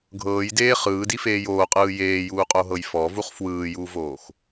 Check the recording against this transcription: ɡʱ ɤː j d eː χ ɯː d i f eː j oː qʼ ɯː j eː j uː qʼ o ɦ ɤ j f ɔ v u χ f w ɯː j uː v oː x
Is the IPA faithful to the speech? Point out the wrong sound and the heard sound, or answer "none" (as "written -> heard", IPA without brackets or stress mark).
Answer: none